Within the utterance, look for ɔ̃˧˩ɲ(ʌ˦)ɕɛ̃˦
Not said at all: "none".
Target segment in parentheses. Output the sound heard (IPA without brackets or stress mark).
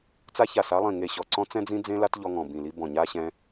a˦